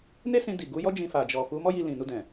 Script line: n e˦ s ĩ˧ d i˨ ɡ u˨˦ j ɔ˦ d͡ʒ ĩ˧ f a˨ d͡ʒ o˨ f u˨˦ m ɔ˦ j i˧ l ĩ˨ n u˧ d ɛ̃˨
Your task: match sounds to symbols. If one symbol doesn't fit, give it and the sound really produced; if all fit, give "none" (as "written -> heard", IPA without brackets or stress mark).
o˨ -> ɔ˨